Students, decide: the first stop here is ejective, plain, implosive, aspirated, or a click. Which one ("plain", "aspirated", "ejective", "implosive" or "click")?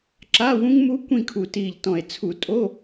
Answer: click